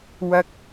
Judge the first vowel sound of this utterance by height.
low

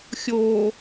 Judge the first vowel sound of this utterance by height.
mid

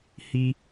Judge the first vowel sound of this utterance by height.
high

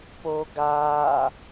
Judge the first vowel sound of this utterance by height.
mid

